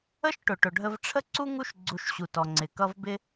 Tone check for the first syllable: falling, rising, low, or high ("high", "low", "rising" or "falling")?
high